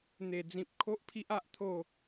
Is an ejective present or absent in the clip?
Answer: absent